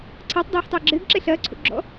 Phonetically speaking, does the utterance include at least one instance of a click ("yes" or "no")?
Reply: yes